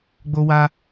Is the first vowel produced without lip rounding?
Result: no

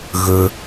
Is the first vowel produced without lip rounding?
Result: no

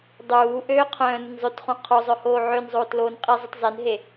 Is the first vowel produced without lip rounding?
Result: no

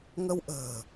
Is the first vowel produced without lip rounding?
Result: yes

